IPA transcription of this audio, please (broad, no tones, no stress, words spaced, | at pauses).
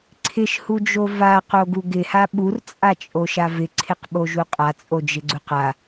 ǀʰɪʃhud͡ʒo vaqoɡu ɡɪha ɓurt͡sʼat͡ʃʼoʃa vɪǀʰɪqɓoʒu qʼat͡sʼod͡ʒɪɡ͡ǀuq a